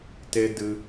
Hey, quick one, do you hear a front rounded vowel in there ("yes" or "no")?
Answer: no